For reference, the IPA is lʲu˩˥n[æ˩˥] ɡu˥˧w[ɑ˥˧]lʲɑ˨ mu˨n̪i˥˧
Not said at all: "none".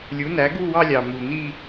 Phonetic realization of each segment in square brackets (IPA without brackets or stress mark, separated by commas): æ˩˥, ɑ˥˧